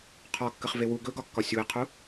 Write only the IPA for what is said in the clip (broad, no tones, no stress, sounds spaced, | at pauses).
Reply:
qʰ ɒ kː ə χ v e w u ɡ ɵ ɡ ɒ kː ɒ sʲ u ɪ̯ qʰ u